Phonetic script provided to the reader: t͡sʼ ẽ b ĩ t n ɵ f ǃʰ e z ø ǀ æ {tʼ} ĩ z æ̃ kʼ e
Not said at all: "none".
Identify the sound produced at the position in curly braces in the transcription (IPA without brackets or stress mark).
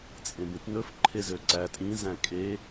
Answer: tʼ